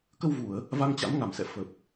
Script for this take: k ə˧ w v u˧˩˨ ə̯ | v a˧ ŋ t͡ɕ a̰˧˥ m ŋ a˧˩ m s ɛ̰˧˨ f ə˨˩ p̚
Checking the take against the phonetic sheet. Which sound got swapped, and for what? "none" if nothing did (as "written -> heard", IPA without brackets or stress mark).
none